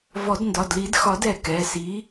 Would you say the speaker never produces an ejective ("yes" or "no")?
yes